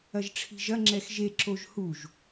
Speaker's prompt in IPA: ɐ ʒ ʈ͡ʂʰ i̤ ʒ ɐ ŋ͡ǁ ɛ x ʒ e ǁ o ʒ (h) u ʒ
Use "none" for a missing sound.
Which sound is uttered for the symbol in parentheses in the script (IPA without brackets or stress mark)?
h